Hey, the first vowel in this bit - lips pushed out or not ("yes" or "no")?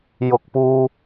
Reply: yes